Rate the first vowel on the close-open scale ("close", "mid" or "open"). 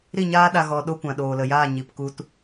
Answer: close